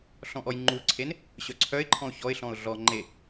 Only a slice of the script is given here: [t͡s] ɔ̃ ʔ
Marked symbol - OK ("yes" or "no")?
no